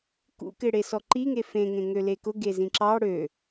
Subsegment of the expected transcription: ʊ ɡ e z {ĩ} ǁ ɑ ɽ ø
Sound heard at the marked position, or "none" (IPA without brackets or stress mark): ĩ